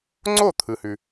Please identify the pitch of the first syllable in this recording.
falling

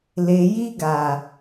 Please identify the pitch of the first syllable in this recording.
low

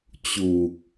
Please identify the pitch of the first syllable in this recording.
low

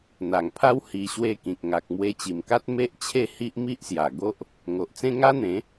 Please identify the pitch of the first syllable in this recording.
low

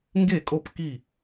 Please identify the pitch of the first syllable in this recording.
falling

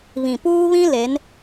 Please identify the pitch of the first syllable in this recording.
low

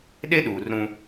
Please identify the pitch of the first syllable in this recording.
high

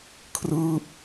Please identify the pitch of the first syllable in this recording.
falling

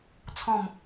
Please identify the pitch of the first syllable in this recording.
falling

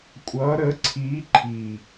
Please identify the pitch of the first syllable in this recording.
rising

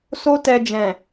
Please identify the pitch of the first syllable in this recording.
high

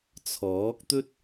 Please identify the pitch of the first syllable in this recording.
rising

